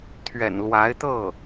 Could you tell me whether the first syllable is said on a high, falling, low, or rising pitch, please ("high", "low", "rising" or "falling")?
low